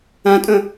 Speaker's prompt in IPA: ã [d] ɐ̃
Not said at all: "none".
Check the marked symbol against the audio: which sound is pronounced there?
tʼ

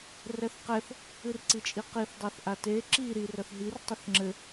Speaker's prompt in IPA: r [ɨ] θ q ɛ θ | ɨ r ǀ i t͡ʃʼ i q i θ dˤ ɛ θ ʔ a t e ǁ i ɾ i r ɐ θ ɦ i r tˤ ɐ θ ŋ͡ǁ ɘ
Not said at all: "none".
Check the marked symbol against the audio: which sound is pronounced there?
ɛ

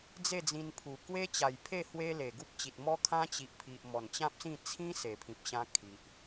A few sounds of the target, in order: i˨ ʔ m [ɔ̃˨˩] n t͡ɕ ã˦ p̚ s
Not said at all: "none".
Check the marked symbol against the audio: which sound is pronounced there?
ɔ˨˩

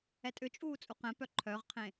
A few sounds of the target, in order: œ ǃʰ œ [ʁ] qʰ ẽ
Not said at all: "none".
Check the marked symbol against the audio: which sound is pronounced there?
ʁ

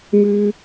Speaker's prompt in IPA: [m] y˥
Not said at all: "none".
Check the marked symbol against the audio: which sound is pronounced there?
m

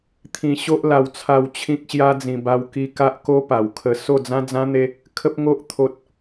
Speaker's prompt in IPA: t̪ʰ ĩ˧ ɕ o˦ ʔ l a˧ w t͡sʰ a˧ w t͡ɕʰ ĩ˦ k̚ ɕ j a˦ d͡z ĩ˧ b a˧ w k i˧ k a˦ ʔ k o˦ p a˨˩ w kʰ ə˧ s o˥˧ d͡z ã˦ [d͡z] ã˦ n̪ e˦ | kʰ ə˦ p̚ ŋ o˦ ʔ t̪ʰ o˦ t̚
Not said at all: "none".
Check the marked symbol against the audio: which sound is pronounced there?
d͡z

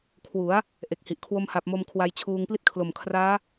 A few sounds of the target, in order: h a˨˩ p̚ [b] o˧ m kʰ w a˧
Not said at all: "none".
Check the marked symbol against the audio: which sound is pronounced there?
m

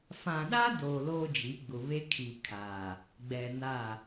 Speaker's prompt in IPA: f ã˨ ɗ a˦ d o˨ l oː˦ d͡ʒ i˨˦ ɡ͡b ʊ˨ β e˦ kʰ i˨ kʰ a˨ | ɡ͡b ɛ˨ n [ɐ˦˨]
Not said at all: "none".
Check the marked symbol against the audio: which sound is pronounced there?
a˦˨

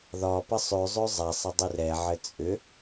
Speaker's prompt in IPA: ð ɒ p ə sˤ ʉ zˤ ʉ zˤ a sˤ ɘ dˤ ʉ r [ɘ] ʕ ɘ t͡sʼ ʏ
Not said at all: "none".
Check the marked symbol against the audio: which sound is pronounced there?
ɛ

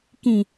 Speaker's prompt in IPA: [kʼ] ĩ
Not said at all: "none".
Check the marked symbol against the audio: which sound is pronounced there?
k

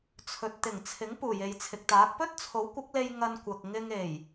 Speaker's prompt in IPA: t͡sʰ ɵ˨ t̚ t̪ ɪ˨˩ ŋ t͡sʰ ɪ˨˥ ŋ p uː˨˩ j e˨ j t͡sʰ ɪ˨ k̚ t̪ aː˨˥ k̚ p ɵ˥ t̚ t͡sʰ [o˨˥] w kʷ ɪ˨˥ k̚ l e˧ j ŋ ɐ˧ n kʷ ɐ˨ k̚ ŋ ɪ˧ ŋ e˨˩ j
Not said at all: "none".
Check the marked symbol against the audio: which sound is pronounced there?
o˨˥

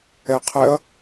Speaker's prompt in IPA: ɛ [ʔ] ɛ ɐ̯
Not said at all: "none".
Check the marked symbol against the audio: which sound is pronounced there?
qʰ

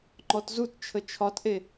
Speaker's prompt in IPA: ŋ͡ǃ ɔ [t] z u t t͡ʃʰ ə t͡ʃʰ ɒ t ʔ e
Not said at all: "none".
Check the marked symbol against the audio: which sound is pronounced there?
t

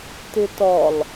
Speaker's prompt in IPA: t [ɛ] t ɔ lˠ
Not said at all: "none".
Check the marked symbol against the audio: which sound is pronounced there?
ɪ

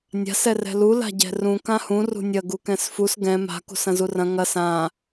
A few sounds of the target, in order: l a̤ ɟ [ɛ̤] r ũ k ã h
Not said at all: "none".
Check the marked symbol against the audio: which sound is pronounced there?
ɛ̤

